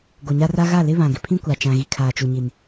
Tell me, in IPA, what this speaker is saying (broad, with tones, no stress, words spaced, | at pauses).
ɡo˨ɲa˦ra˦ ɣa˦˨lɪ˦ βã˨ɡɪ˨pʰĩ˦ kʷa˨ t͡ʃã˨ɣi˨ kʰaː˨t͡ʃu˨ɲi˨n